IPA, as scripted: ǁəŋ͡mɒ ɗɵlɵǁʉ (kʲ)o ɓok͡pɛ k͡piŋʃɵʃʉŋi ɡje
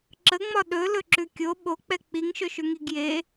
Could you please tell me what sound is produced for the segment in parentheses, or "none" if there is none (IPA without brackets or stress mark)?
kʲ